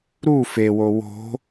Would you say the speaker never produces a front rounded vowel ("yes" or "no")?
yes